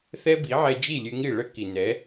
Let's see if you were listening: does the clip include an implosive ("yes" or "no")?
no